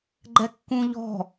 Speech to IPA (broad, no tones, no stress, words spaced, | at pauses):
ɡ͡ǃɛkːũʎɔ̤